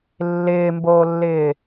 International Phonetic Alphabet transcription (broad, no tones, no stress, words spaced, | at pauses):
lːɪːmboːlːɪː